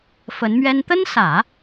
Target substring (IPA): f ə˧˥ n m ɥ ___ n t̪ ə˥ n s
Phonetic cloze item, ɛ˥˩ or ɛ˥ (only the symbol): ɛ˥